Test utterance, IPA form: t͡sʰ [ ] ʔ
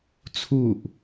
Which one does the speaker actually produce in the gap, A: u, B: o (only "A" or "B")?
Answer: A